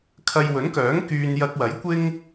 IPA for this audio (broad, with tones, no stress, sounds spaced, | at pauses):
kʰ ɐ˧ j w ɵ˨˥ n k œː˨˥ ŋ k yː˧ n j ɐ˧ k̚ w ɐ˨˥ j kʷ ɪ˥ ŋ